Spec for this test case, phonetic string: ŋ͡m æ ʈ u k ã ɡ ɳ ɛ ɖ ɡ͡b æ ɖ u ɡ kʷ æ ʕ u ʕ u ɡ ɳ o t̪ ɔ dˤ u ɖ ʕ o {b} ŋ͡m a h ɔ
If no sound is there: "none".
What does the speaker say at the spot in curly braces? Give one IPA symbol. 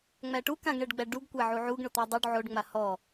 ɖ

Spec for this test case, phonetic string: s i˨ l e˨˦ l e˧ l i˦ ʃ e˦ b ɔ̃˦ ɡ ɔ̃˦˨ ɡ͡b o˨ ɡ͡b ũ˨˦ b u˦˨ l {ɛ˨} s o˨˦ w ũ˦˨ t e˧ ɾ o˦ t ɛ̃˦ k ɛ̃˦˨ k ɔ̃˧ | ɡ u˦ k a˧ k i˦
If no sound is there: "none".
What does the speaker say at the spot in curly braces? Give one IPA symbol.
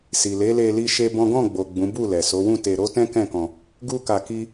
ɛ˨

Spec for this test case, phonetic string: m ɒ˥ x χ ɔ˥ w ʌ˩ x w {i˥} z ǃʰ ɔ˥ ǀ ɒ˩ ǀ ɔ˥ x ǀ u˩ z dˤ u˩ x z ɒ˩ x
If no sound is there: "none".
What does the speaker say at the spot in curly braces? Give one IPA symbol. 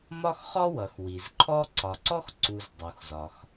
i˩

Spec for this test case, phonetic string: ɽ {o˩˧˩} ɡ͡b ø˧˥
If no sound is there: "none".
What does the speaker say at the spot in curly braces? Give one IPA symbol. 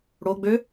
o˩˧˩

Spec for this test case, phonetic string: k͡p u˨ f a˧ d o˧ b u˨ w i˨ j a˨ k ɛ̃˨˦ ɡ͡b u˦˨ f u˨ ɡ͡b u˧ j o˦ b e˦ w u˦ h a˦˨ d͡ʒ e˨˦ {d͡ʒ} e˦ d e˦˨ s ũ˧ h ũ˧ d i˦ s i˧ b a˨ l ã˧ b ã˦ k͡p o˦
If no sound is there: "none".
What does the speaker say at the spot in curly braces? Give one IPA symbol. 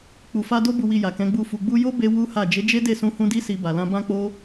d͡ʒ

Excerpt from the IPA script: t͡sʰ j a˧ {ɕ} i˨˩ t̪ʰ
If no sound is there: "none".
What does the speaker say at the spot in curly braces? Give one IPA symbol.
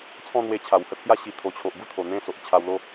ɕ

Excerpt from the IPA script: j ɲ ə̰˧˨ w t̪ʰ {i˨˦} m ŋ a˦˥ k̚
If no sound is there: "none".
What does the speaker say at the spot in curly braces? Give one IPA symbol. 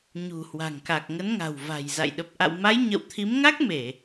i˨˦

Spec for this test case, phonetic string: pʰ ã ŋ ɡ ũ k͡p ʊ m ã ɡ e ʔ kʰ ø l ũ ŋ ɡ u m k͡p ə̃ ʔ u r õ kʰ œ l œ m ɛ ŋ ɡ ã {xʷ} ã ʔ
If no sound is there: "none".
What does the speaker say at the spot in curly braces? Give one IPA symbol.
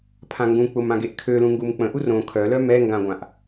ɡʷ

